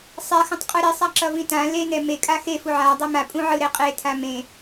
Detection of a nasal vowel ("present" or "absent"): present